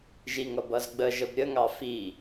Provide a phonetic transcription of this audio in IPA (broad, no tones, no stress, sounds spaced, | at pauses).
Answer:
ʒ i ŋ ʌ b ʌ z ɡ͡b ə ʒ ə b ɾʲ ə ŋ ɑ f i